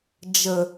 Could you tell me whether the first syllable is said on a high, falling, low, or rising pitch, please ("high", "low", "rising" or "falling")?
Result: low